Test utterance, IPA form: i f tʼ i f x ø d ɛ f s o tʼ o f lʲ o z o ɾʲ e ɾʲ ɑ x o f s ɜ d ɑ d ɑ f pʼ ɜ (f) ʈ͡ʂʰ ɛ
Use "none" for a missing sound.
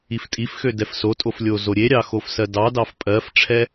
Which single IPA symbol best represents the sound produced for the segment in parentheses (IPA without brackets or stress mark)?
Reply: f